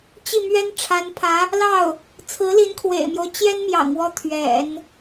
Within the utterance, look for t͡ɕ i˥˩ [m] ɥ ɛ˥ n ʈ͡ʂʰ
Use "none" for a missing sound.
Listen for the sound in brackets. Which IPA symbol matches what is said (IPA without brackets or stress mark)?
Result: m